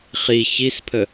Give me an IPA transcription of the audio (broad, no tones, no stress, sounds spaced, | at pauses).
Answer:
χ i ç i s pʰ ə